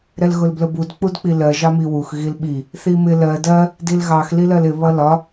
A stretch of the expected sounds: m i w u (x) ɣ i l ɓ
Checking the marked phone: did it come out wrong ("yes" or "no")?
no